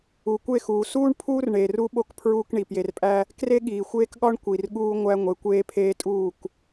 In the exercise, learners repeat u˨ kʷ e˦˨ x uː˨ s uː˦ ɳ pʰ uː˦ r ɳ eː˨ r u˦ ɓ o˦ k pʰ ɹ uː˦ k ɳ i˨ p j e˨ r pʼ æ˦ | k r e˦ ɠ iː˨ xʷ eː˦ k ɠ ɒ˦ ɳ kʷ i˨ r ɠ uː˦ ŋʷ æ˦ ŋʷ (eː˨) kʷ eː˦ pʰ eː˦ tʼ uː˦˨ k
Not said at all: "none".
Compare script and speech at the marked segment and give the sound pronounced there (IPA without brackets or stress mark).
e˨